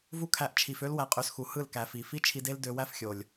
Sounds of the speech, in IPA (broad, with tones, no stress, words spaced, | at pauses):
vu˦kʰæ˧ʔ t͡ʃʰi˨fø˦l wæ˧qʼø˧sxu˨ hɯ˦˨lkæ˨fi˨ fi˦t͡ʃʰi˧de˦l dø˧wæ˦fxʲo˨lʲ